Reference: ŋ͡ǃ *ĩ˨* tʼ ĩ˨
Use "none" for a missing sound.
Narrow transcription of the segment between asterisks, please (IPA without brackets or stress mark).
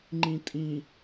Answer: ĩ˨